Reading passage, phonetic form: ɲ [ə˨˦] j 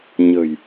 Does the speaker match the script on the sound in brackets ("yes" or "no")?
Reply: no